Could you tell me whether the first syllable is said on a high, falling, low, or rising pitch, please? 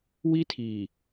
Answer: high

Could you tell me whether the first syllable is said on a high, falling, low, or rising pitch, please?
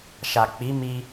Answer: low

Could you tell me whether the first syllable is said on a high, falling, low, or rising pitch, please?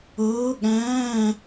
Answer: rising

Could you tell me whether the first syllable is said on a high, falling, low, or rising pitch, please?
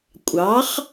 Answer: rising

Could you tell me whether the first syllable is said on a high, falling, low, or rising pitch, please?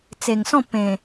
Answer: low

